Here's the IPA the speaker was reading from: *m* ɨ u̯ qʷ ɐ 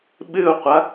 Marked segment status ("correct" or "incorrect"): incorrect